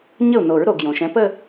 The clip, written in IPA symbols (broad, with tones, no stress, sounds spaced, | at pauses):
ɲ ə˥˩ u̯ n o˨˩˦ ɹ ɾ o˩ ɡ j õ˩ ʃ ɛ̃˨˦ p ə˥˧